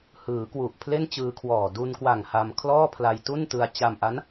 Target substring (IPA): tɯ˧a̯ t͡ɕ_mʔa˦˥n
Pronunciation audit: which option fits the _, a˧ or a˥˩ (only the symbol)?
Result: a˧